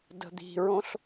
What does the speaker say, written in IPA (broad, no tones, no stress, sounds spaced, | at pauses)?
d ə̤ d̪ i̤ ɹ õ ɬ